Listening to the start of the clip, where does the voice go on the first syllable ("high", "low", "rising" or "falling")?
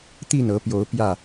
falling